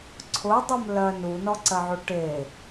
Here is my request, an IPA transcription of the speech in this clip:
ǀʰ ʊ dˤ ʊ m l ɜ n u n ɔ ǀ ɜ ʕ u ʈ e

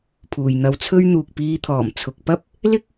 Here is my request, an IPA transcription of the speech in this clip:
pʰ uː˨ j n̪ ɐ˧ w t͡sʰ ɵ˥ ɥ n̪ uː˨ k̚ p iː˧ t̪ʰ ɔː˨˩ m t͡sʰ ʊ˨ k̚ p ɐ˥ p̚ | l ɪ˥ k̚

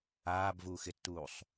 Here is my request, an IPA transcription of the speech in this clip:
aː b v uː x ɪ tː uː sˤ

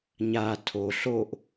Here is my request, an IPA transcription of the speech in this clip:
ɲ a tʰ o ɬ o ʔ

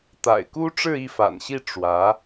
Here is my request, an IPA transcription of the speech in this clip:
t̪ a̰˨˩ ɪ̯ k u˥ ʈ͡ʂ ɻ̩˥˧ i˥˩ f a̰˨˩ n ɕ i˥˩ ʈ͡ʂ w ä˧˥

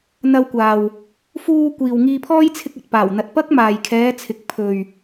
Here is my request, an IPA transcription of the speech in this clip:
n̪ ɐ˧ w kʷ aː˨ w | f uː˧ kʷ iː˨ w ŋ iː˧ pʰ ɔː˥ j t͡sʰ ɪ˧ k̚ ɐ˨ t̚ p aː˨˩ w n̪ ɐ˨ t̚ p ɐ˥ k̚ m aː˨ j kʰ ɛː˨˧ t͡sʰ ɪ˨ k̚ pʰ ɵ˨ ɥ

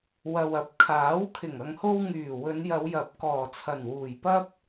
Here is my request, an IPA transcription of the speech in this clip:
w ɐ˨ w ɐ˨ p̚ kʰ aː˨˥ w kʰ ɪ˨˩ ŋ ɐ˨ ŋ h o˧ w ŋ yː˨˩ w ɵ˨˧ n j ɐ˨˧ w j ɐ˨˥ p̚ k ɔː˨˩ t͡sʰ ɐ˨˩ n w uː˨˩ j p ɐ˥ p̚

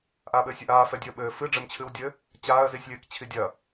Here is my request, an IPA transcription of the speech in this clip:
ʔ aː ɓ ɘː sʲ ɐ ʔ aː f ɛ dʲ e ə̯ ɓ ɘː f ɨ ɖ͡ʐ ɘ m t͡ɕʰ ɨ w dʲ ɘ | t͡ɕ aː ə̯ z i sʲ lʲ ɘː k t͡ɕʰ i dʲ ɐ

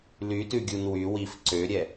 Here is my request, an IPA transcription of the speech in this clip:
l y t ʉ ɡʲ u n w y w i f ǀ ø ɾʲ ɛ

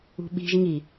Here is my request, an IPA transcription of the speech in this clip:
ṳ ɓ i̤ ʒ ŋ i

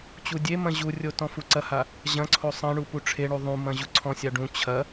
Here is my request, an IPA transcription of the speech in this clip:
t͡ɕ u dʲ e m ɐ̃ ʑ u rʲ o t ɔ̃ f u ǀ ɐ h a | ʑ ɐ̃ ǀʰ o sˤ ɐ̃ ɳ u p u ʈ͡ʂʰ e ɳ u ðˤ ũ m ɐ̃ ʑ u ǀʰ ɔ̃ sʲ a ɖ ũ t͡ɕʰ ɐ

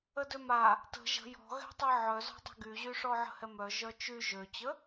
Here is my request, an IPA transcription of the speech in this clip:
ə d ø m a | t ə̤ ʒ ə̤ j ɔ̤ ɣ ɛ̤ tˤ ɛ ʕ œ z ɔ̤ dˤ ɛ̤ ɡ y ʑ y ʂ ɔ ʕ ə̤ h ɛ m œ ʒ œ t͡ʃ y ʒ ø t͡ɕ ə

